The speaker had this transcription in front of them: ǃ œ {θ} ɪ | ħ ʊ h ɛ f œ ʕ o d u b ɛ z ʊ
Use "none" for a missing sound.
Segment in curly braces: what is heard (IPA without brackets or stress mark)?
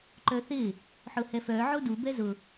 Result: θ